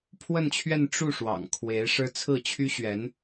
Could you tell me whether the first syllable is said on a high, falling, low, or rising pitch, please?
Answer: falling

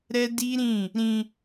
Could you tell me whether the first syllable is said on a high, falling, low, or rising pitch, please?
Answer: high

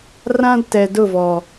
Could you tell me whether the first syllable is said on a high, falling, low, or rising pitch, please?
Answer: high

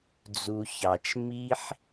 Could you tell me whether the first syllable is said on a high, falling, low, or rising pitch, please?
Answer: low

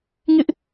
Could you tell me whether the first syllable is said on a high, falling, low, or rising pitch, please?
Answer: high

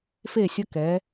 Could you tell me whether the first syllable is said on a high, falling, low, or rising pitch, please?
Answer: falling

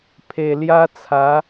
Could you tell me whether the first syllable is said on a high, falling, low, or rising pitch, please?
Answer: low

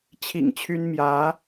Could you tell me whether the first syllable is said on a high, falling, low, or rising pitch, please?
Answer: low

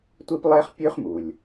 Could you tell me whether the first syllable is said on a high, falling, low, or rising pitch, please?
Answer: high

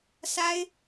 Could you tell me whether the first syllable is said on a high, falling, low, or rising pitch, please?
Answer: high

